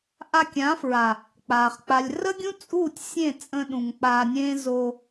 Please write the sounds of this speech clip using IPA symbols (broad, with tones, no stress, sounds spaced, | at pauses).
ʔ a˧ kʲ ã˨˦ f ɹ a˨ | k͡p aː˨ χ k͡p a˨ lʲ r ə˦ ɡʲ ũ˦ t͡sʼ uː˦˨ tʲ sʲ ẽ˦˨ t͡sʼ ə̃˧ ɗ ũ˨ ŋ k͡p aː˧ nʲ ẽː˦ z o˧